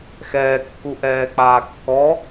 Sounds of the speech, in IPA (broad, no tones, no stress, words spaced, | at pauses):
xɛːkːuʔɛːk͡paː kːɔ